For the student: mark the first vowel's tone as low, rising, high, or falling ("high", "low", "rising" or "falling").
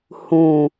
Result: low